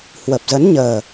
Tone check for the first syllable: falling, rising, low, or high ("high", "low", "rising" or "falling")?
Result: low